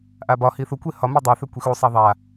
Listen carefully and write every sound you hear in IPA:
ʔ a b ɒ h i θ u kʷ e h ɒ m e dˤ a θ ø kʷ i x u sˤ a ðˤ a

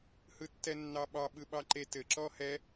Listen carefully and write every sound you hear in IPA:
h ɯ tː ɛ nː ɑ ɓ ɑ ɓ ɯ ɓ ɑ ǃ e t ɘ ǁ ɔ h ɛ

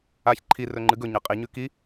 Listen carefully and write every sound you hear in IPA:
a ç ǃʰ i r ɵ ŋ͡ǃ ɨ ɡ ɵ ɲ ɐ qʼ i ɲ ʉ k i

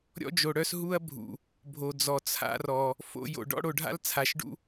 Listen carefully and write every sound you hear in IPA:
ɾʲ ɔ̰˦ d͡ʒ o˨ ɽ œ˦ s ɦ u˦ ɐ̯ bʱ ṵ˨ | bʱ o˨ d͡z ɔ˨ t͡sʰ a̰˦ r ɔ˨ | f o̰˦ j o̰˨ ɖ ɔ̰˦ ɽ o˨ ɖʱ a̰˦ l t͡sʰ a˨ ʃ ɖ ṵ˦

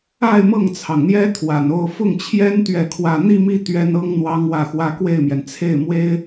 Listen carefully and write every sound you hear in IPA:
a˥˧ ɪ̯ m ɤ˥˩ ŋ t͡sʰ ɑ˩ ŋ n̪ j ɛ˥ t̪ʰ w a˨˩ n o˥˧ ʊ̯ f ʊ˥˩ ŋ t͡ɕʰ j ɛ˥ n t̪ ɥ ɛ˥˧ kʰ w ä˥˧ n̪ i˥˧ m i˥˩ t̪ ɥ ɛ˥ n ɤ˥ ŋ n̪ w ɑ˥ ŋ w ä˥˩ x w ä˥ k w e˥˩ ɪ̯ m j ɛ˩ n t͡sʰ e˥˩ ɪ̯ m w e˥ ɪ̯

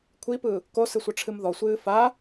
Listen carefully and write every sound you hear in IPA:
kʷʰ i p ɯ | k o s ɨ sʷ ʌ ʈ͡ʂʰ ɨ m ð ɔ sʷ ɨː f a

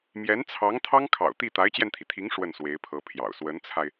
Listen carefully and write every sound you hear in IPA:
m j ɛ˧˥ n t͡sʰ ɑ˧˥ ŋ t̪ʰ ɑ˥ ŋ kʰ ɑ̰˨˩ ʊ̯ t̪ i˥˩ t̪ a˧˥ ɪ̯ t͡ɕ j ɛ˧ n t̪ʰ i˩ t̪ʰ i˧˥ ŋ ʂ w ə˥˩ n s w e˧˥ ɪ̯ pʰ ɤ˧˥ pʰ j ɑ̰˨˩ ʊ̯ s w ə˧˥ n t͡sʰ a˧ ɪ̯

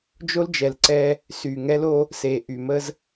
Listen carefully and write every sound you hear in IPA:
d͡ʒ o˦ l d͡ʒ ɛ˨ l ǀ ɛ˦ | s y˨ ŋ ɛ˦ l o˦ | s e˨ ʔ y˨ m ə˦ z

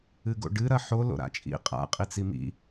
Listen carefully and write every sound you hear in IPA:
ɨ ɡ o̰ ɖ ɨ ɾ ɐ ħ o l o̰ ɾ a̰ t͡ʃʼ ḭ qʼ a̰ qʼ i t͡s i m ḭ

